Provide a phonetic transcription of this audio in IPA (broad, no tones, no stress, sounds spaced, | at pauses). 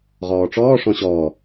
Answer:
ʁ ɔː ʈ͡ʂ ɔː ʂ ɔ̃ ɕ ɔː